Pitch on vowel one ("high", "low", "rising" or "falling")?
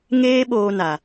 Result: high